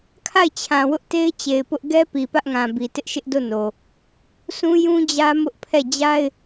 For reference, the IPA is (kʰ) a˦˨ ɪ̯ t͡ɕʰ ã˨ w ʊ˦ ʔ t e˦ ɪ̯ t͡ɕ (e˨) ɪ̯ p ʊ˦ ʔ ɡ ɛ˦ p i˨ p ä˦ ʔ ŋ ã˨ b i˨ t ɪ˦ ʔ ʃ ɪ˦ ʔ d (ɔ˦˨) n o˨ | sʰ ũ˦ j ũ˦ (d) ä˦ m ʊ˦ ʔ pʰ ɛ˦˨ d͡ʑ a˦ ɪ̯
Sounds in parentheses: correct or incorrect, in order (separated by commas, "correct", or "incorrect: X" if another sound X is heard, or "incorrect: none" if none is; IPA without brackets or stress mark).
correct, correct, incorrect: o˦˨, incorrect: d͡ʑ